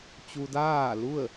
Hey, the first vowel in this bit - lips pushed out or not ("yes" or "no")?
yes